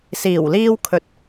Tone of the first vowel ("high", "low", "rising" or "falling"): low